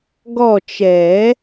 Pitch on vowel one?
falling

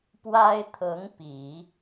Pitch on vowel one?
high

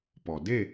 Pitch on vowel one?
low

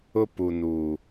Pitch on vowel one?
high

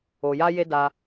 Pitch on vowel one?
low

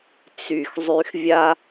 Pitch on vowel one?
low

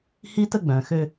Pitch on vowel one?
high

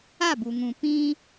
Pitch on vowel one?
falling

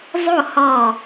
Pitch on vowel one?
falling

